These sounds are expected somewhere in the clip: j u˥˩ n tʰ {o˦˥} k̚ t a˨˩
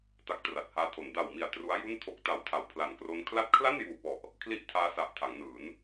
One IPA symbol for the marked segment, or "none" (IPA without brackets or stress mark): o˦˥